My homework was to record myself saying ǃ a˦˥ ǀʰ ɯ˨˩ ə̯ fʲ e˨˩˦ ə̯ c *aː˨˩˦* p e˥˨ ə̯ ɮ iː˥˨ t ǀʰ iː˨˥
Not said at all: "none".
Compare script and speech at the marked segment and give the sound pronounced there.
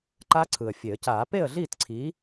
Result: aː˨˩˦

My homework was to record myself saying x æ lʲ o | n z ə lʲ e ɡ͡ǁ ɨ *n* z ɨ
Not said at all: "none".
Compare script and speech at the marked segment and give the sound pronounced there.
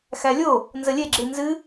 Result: n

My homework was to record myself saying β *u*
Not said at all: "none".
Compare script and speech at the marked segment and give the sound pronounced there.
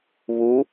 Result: u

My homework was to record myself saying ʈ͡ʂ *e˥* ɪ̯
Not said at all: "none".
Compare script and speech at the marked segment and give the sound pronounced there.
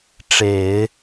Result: e˨˩˦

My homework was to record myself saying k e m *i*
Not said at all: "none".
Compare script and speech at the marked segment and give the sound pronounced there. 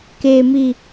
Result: i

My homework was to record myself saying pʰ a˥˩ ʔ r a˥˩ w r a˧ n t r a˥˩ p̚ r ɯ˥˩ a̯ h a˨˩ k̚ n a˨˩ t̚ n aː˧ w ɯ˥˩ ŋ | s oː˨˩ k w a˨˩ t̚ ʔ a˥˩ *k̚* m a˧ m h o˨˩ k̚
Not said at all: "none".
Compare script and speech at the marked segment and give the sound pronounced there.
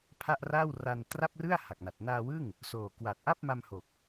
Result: p̚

